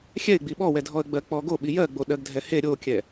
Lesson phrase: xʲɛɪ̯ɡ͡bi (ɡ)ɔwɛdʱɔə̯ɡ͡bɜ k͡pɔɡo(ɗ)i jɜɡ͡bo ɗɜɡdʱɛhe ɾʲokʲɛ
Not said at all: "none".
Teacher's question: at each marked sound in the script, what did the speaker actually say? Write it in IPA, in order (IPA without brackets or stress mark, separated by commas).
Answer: ɓ, ɓ